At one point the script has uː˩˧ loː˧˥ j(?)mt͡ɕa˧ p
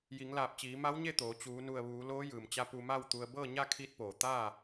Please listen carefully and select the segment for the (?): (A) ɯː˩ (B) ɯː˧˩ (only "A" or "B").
A